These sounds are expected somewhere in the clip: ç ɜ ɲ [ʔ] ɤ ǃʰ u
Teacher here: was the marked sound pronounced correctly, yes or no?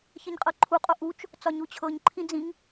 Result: no